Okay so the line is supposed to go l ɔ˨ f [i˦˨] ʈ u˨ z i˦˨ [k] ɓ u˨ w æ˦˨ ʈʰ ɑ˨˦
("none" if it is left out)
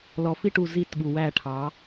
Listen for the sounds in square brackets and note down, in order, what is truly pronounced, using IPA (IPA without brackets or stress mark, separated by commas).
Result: i˦˨, t